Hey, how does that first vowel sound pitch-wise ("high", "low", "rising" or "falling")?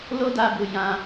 high